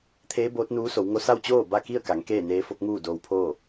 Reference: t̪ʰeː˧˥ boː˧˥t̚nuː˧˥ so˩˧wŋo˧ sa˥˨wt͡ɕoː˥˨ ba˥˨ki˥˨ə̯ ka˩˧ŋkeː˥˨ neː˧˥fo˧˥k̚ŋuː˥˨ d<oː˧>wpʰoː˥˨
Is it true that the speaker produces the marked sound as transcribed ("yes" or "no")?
yes